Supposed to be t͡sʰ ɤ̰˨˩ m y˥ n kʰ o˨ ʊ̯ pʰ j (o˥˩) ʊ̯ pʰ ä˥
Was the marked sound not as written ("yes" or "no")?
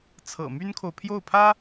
no